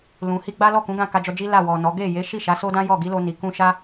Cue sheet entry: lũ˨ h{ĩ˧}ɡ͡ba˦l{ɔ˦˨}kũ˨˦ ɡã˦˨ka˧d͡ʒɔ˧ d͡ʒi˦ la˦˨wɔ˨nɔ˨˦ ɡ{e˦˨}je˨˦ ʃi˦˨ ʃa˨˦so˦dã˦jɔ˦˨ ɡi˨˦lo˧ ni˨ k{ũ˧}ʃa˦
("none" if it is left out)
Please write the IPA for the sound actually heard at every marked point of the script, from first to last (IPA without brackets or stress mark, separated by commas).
i˧, ɔ˦˨, e˦˨, ũ˧